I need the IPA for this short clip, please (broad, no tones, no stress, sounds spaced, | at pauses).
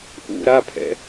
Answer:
ʔ ṵ ɾ a pʰ ɛ̰